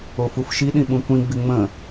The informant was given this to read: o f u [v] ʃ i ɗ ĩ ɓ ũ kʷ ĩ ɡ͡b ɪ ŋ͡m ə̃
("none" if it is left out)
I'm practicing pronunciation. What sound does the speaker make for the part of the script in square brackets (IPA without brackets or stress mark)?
f